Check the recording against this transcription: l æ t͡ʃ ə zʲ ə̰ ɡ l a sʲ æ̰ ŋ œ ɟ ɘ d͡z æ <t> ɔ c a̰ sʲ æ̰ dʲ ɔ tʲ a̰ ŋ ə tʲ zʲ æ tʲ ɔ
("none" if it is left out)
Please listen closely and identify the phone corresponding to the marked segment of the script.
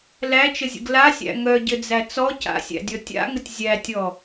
t͡s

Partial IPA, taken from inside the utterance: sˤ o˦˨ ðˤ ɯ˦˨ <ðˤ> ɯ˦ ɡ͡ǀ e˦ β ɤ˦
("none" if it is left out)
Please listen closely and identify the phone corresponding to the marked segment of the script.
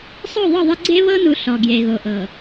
ðˤ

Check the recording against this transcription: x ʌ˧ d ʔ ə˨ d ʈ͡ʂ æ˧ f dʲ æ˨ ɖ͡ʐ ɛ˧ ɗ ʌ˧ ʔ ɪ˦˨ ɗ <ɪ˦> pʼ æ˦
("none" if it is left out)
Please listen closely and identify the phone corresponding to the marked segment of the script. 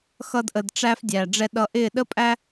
ə˦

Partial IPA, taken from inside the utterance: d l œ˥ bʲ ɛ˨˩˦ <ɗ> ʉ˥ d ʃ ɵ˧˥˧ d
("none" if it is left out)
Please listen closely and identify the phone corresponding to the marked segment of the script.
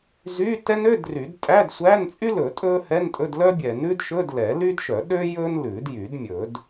n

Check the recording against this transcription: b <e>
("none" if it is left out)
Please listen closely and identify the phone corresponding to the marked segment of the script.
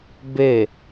e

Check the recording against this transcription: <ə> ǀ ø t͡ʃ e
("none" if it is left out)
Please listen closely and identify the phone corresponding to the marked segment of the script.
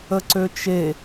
ə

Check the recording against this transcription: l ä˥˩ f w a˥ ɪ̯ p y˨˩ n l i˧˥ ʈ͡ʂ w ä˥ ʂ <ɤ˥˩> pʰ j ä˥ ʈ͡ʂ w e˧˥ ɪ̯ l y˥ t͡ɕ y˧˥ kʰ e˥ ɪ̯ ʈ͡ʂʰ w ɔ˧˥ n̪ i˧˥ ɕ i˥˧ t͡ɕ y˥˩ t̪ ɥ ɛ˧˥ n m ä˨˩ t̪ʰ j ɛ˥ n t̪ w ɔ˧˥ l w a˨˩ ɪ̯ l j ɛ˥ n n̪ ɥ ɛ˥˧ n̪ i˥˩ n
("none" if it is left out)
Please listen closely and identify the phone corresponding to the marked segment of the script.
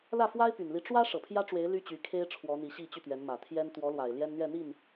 ɤ˨˩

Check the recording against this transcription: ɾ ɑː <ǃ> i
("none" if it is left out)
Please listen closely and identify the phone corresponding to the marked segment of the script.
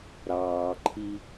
ǃʰ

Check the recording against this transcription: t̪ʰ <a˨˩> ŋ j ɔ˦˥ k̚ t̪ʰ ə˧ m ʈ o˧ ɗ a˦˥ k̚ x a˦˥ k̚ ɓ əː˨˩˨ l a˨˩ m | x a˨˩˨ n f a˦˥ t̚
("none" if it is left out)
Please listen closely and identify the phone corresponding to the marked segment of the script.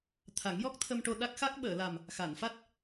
a˨˩˦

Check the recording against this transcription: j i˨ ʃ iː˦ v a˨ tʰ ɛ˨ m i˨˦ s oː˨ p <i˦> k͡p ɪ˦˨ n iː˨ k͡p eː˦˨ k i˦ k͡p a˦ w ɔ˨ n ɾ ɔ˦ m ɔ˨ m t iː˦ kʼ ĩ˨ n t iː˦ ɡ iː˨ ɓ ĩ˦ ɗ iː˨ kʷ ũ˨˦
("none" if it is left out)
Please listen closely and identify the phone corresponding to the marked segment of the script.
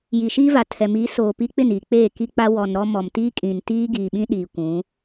i˦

